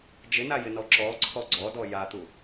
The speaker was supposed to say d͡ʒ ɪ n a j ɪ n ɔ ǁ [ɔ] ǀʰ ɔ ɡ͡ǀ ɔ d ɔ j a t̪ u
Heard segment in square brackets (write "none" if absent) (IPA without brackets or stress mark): ɔ